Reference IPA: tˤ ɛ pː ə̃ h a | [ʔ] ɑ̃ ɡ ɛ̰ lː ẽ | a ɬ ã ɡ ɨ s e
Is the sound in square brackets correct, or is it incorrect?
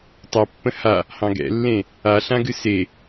incorrect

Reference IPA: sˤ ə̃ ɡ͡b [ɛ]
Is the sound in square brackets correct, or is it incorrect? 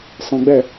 correct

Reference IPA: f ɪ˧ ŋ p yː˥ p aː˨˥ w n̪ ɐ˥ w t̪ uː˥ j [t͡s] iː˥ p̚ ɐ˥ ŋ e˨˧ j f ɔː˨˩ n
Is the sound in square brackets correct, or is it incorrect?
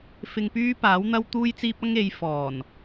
correct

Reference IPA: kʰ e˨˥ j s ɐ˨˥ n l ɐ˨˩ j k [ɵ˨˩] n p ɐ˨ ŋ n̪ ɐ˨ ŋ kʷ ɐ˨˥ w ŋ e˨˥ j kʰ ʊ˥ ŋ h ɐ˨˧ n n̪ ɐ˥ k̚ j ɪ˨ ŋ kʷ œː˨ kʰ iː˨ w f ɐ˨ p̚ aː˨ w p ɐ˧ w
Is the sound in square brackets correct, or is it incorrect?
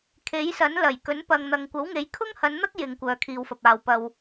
incorrect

